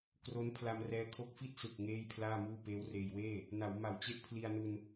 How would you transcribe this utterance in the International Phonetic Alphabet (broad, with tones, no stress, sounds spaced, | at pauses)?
k r o˦˥ n pʰ l a˧ m r ɛː˦˥ kʰ o˦˥ k̚ f i˥˩ t̚ s ɯ˨˩ k̚ ŋ eː˥˩ j pʰ l aː˥˩ m uː˥˩ p eː˦˥ w r eː˧ j w eː˥˩ | n a˩˦ w m a˨˩ w t͡ɕ e˥˩ ʔ pʰ l i˧ a̯ n u˧ n